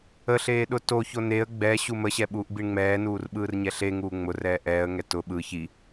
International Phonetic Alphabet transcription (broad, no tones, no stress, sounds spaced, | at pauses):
ə ɬ eː ɗ ʊ t o ç o n e ə̯ ɡ͡b ɛ ɕ u m ə ɕ ɛ ɓ uː ʔ b i ɳ ŋ͡m ɛː n uː r ɓ ɯː r ɲ ɛ ɬ e ŋ uː ŋ͡m ʊ r ɛː ʔ ɛː ə̯ ŋ ɛ t ʊ ɓ ɯ ç i